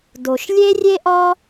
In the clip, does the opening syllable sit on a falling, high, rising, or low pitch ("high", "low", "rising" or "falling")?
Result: low